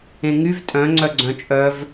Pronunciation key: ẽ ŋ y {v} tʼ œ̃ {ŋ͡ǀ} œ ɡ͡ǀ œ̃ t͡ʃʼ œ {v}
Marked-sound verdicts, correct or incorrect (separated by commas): correct, correct, correct